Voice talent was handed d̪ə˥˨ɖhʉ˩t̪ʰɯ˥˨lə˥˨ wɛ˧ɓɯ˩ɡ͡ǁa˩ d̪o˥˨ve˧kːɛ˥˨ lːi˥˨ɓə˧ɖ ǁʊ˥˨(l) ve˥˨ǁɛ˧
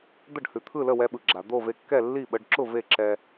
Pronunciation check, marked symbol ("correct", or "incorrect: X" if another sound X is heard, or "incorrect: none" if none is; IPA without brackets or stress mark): incorrect: none